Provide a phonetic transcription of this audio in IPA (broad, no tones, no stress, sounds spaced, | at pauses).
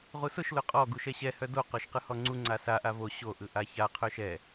ʁ u s ʊ ʃ l ʊ qʼ ɔ ɡ u ʃ ɛ ɕ ɛ h œ d o q ɔ ʃ q ɯ h ɔ ŋ͡ǀ u ŋ͡ǀ a s a ʔ a v o ɕ o ʔ ɯ ʔ a ç a qʰ œ ʃ ɛ